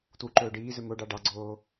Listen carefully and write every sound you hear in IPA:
t w u ǃ ɵː ɖ iː z ɵ m o ɖ ɑ ɖ ɑ ɡ͡ǀ oː

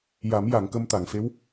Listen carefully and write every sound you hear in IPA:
j a˨˩˦ m j a˨˩˨ ŋ k ə˧ m t̪ a˨˩˨ ŋ f e˧˥ w

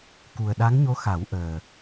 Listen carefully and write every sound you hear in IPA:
k u˨˩ ə̯ ɗ a˧˥ ŋ ɲ o˧˥ x a˨˩˦ w ʔ əː˨˩

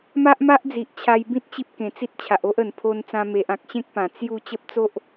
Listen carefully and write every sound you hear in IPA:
m a˦ ʔ m a˦ ʔ d͡z i˨ ʔ t͡ɕʰ a˧ j b ĩ˦ t̚ t͡ɕ i˦ p̚ k ẽ˨˩ t͡s i˦ t̚ t͡ɕʰ a˨ ʔ o˦ ʔ ə˨˩ n pʰ o˧ n t͡s ã˧ m e˨ ʔ ã˨ k̚ ɕ ẽ˦ k̚ p ã˨˩ t͡s j u˥˧ t͡ɕ ə˦ p̚ t͡s o˦ ʔ

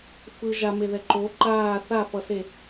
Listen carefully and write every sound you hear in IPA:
f ɯ ʒ a m e ð ɛ ǃ o ǃ aː θ a f ʌ s e

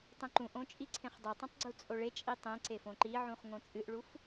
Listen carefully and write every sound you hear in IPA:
tˤ ũ ǃ ũ ʔ õ t͡ʃʼ i ǀʰ ẽ χ dˤ u tˤ ũ tˤ ɡ͡ǀ u t͡sʼ o ɭ e t͡ʃʼ i tˤ ẽ ǀ e f õ ǃ i ʕ ũ χ ŋ õ t͡sʼ ɨ ʔ ɭ u f

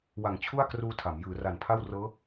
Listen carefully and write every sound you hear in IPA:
w a˩˦ ŋ t͡ɕʰ u˥˩ a̯ k r uː˧ tʰ a˩˦ m j ɯː˩˦ r a˨˩ n pʰ a˥˩ w r ɤː˦˥

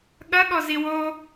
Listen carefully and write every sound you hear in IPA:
ɠ ɐ ɠ ɔ z i w o

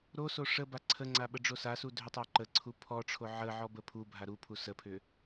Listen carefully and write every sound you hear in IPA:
ɾ o s o ʂ ə b a ǀʰ ə ŋ͡ǀ a ɓ ə ɖ͡ʐ o s a s u dʱ ʏ tˤ a ǃ ə ǀʰ u pʰ ɔ ʈ͡ʂʰ o ʕ ə ʕ ɔ b ə pʰ u bʱ a ɾ u pʰ u s ə pʰ ʏ

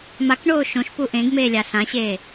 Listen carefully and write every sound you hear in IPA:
m a k ɳ oː ʃ õ ʃ p u ʔ ẽ ɡ m eː lʲ a ɬ ã ɕ eː

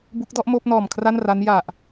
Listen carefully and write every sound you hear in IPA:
b u˦˥ k̚ d ɔ˥˩ ʔ m oː˥˩ p̚ n ɔː˨˩ m kʰ r a˥˩ n r a˦˥ n j a˨˩ ʔ

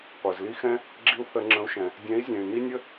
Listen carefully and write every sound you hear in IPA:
qʷ ɜ˩ z l i˦ x ɛ̃˦ | ɡ͡ǁ i˦ u̯ θ ə˧˩˧ ŋ͡ǁ ə̃˨˦ u̯ ʃ ɛ̃˩ | dʲ ɛ̃˨˦ i̯ zʲ ɛ̃˩ y̯ n i˦ nʲ ə˦

